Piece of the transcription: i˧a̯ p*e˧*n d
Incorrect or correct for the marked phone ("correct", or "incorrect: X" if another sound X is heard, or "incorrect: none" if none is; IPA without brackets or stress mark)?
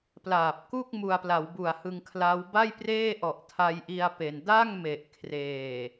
correct